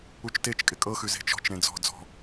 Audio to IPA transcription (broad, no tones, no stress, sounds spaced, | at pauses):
u t͡ʃ t e t͡ʃ kʼ ɪ kʼ ɤ x ʉ z e̤ t͡ʃ ɔ̤ t͡ʃ ɾ ẽ d͡z ɔ̤ d͡z ɔ̤